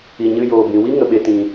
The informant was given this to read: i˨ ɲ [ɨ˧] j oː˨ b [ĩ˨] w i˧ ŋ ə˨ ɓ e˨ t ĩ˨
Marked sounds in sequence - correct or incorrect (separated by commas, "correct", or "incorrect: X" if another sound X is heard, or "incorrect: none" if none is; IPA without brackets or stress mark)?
correct, correct